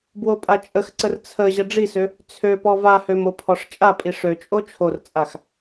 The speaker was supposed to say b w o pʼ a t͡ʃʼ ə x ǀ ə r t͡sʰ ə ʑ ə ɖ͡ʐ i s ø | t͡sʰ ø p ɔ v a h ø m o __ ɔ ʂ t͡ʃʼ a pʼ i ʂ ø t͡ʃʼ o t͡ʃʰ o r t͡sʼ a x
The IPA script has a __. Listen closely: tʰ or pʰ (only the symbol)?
pʰ